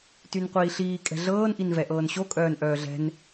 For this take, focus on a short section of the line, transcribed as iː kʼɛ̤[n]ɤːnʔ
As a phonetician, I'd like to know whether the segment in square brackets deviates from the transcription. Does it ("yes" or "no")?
yes